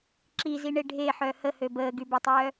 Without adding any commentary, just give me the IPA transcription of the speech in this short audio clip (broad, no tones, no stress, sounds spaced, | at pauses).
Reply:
ǁ i z i ɳ e ɖʱ e ħ œ h ə h ø b əː ɡ y b e tˤ œː